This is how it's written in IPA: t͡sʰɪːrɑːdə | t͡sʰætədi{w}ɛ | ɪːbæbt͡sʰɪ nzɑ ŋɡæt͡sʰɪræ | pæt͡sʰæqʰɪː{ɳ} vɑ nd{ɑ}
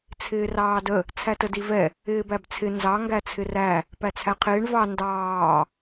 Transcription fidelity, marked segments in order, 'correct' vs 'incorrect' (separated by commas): incorrect, correct, incorrect